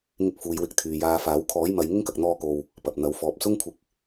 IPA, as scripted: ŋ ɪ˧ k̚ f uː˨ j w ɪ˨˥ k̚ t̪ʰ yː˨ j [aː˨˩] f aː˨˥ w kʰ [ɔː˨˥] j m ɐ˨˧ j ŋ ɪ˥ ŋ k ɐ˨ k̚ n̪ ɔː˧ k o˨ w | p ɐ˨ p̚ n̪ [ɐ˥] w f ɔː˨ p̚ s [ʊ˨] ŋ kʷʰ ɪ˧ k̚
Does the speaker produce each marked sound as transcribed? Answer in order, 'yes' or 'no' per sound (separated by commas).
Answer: no, yes, no, no